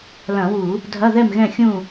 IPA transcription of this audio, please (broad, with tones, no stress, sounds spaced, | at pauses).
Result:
l ɐ̃˧˩˧ w u˧˩˧ | dʱ ɐ˧˥˧ ð ɛ˥˨ m ɣ ɛ̃˥˨ xʲ ũ˥˨